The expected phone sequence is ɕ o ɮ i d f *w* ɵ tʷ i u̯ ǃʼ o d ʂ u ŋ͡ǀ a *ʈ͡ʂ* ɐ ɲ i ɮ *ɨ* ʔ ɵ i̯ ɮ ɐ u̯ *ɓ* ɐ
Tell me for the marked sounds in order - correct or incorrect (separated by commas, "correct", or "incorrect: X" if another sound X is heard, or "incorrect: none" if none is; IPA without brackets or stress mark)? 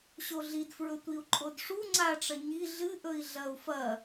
incorrect: ɹ, correct, correct, incorrect: f